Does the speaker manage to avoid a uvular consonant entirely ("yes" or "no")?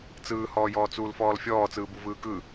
yes